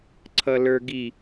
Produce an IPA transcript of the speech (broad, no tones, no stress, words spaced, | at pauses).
ǀʰʌlə˞ɡi